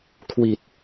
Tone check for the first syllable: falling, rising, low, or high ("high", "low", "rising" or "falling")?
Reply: low